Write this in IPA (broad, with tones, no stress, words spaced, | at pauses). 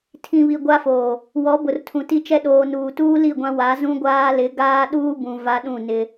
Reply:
tʰĩ˨βi˨ ɡʷa˦foː˨ | wɔ˨˦ bʊ˨rtʰũ˨ti˦t͡ʃɛ˦ ɗoː˨nuː˨tuː˦ li˦˨ɡʷã˦wa˨˦ zũ˦ɡʷaː˦lɪ˨˦ ɡaː˦ɗuː˦bũ˨ va˦ɗũ˦˨nɪ˦